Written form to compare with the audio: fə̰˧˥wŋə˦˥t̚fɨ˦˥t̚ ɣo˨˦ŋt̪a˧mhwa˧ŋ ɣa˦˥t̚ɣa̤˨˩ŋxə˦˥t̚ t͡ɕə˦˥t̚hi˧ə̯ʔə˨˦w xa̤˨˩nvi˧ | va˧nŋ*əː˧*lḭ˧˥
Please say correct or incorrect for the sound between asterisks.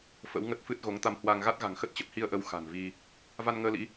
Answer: correct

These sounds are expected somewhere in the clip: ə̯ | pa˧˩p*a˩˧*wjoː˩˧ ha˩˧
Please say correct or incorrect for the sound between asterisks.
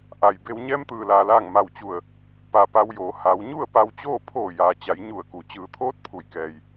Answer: incorrect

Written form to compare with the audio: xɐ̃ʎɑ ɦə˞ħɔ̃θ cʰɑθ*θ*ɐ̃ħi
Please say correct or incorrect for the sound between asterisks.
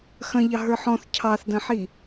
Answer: incorrect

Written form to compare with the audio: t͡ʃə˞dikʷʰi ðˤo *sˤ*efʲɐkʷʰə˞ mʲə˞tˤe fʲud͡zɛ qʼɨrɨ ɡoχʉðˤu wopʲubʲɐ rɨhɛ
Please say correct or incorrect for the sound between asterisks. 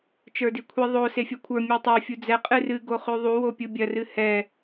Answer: incorrect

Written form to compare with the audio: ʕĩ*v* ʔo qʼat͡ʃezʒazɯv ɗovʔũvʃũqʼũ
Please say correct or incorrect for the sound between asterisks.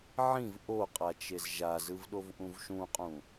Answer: correct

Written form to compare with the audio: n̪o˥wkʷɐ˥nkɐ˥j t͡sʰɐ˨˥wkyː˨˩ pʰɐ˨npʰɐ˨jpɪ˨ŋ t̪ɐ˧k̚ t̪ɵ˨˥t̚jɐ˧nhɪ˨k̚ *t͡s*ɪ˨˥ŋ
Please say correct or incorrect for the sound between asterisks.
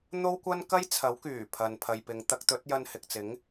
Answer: correct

